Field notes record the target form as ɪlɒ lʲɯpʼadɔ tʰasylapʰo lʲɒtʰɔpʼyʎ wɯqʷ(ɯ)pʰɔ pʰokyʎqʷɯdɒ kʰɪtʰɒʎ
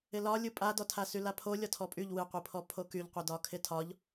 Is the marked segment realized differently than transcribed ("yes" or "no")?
no